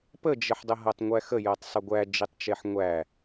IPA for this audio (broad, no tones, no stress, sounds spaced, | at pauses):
p ə d͡ʒ ə ħ dˤ ə ɦ ɤ tˤ ŋʷ æ x ə j ɤ tˤ sˤ ə ɡʷ æ d͡ʒ i tˤ t͡ʃ e ħ ŋʷ æ